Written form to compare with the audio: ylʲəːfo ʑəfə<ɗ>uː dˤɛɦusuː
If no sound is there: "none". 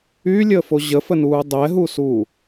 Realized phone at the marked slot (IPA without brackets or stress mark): n